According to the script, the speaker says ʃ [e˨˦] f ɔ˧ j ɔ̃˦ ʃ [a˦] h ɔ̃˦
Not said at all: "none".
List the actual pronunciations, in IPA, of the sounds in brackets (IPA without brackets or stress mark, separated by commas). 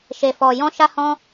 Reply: e˧, a˦